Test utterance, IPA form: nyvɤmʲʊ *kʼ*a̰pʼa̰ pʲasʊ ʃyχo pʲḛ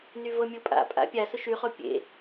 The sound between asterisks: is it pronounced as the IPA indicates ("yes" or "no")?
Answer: no